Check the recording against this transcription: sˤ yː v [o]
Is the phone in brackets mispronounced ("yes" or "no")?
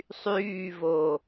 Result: no